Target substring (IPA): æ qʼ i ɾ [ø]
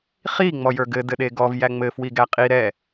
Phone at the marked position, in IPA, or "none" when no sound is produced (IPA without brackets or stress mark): ɛ